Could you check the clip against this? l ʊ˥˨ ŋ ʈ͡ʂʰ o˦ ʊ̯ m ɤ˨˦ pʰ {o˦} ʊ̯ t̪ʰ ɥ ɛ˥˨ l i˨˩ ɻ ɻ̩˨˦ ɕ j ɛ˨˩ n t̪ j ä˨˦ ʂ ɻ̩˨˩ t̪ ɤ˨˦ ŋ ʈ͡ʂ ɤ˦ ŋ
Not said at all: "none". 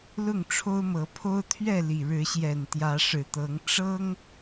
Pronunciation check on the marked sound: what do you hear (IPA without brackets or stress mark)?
o˦